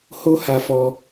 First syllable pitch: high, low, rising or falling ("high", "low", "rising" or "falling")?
high